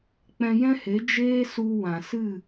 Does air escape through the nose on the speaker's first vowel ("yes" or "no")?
yes